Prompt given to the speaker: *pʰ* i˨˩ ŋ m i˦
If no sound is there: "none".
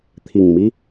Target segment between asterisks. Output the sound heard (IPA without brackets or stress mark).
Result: t̪ʰ